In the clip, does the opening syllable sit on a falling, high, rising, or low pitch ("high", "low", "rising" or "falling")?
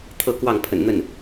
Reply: falling